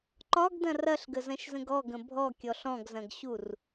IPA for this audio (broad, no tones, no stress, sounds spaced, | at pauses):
ǃ ɒ ɡ d ɐ̃ r ɐ ɬ ɡ ə z ɐ̃ ʃ z ə̃ ɡ ɔ ɡ ə̃ bʱ ɔ kʲ ɔ ɬ ɔ̃ ɡ z ɐ̃ ɡ ɕ u r